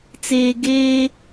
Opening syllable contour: low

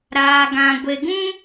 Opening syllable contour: low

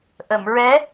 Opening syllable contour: low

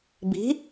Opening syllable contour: rising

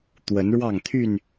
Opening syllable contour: rising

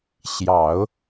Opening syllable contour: low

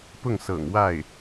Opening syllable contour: falling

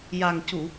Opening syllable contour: low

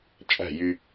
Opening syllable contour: falling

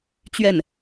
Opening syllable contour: falling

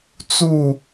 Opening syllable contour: falling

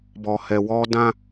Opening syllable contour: low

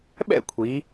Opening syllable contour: falling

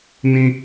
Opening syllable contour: high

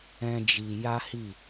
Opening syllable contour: high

